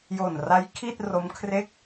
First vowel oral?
yes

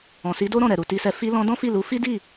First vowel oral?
no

